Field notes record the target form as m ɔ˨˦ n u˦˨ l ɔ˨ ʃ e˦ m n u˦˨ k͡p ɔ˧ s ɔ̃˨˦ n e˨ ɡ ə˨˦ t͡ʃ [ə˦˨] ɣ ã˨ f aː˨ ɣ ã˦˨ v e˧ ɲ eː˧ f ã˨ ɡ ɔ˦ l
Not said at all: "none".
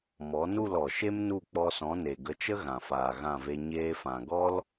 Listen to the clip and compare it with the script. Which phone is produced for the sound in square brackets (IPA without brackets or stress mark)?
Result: ə˦